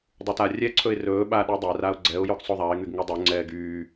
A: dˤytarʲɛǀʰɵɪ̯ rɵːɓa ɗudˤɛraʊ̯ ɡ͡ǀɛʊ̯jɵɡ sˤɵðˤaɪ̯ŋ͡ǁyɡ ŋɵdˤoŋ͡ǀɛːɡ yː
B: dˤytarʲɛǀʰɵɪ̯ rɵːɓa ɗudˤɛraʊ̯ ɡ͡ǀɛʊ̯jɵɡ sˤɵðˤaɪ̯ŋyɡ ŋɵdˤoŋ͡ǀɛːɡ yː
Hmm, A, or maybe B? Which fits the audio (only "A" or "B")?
B